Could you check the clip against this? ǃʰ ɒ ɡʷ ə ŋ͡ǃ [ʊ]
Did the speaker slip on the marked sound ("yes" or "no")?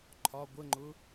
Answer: no